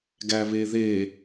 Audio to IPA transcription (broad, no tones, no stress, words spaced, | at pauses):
ɡæβeðe